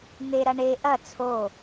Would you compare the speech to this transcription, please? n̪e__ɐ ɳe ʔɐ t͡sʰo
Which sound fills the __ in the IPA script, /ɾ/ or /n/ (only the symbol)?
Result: ɾ